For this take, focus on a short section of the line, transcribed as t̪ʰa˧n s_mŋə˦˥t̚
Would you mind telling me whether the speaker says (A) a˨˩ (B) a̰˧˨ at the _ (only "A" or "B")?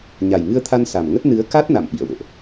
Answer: A